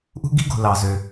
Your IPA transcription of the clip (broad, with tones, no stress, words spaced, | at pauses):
ʔṳ˥ɡi˥ɡo̤˩ lɑ˩zø˩